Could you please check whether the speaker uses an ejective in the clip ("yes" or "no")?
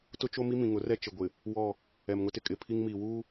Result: yes